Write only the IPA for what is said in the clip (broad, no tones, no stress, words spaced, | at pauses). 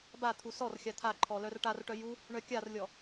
bat̪ʰu sɔrxʲa t̪ʰaǃʰɔ lœrʈarʈœ ju | ɳœkʲarlʲɔ